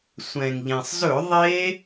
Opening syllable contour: low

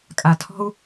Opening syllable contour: low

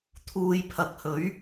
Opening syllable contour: low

